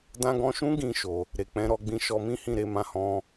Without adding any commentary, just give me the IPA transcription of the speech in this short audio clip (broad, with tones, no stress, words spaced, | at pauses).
dã˦ ɡɔ̃˧ʃũ˦ ɡĩ˦˨ʃo˨ | ɾe˨k͡pɛ̃˨˦ ɾɔ˧ɡ͡bĩ˧ʃɔ˧ mĩ˦hĩ˦˨ ɾe˧mã˧hɔ̃˧